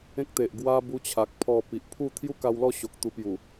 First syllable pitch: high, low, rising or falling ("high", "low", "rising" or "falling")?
high